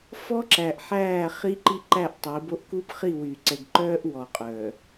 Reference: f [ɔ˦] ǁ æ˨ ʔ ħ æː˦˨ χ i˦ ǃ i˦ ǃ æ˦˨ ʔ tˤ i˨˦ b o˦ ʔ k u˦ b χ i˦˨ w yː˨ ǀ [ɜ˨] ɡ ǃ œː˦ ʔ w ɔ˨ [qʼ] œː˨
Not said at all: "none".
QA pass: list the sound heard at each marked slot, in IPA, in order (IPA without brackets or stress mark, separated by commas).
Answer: ɔ˦, ɛ˨, qʼ